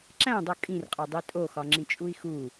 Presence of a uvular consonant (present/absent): present